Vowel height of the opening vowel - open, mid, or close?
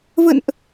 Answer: mid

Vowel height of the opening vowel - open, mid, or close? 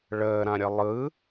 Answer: mid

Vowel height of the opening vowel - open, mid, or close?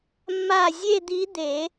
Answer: open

